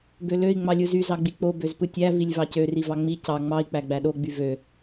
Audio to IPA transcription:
b ø l ø i̯ ŋ͡m ɑ lʲ ɯ z y z ɑ ɡ͡b i k͡p o b ø z p ɯ tʲ æ v i lʲ v ɑ c ø r i v ɑ ŋ͡m i c ɑ ŋ͡m ɑ i̯ k͡p æ ɡ͡b æ ɗ o ɡ͡b y v ø

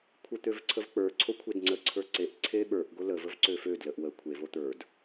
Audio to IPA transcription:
kʷʰ ə t̪ ø v ǀʰ ə v k͡p ə˞ ǀʰ o kʷʰ e d ŋ͡ǀ ə ǀʰ ə˞ ǀ e ʔ ǀʰ e ɓ ə˞ ʔ ɡ o l ə v ə v ǀ ø f ø d l ə ʔ w ə kʷʰ e v o t̪ ə˞ d

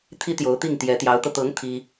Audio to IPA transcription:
t̪ʰ i˥ t̪ j o˧˥ ʊ̯ t̪ i˥˩ ŋ t̪ j ɛ˧˥ t̪ j ɑ˧˥ ʊ̯ t̪ ɤ˧ t̪ ɤ˧˥ ŋ t̪ʰ i˥

